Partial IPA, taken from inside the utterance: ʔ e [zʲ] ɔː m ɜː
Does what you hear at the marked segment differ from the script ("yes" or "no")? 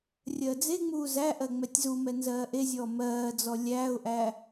no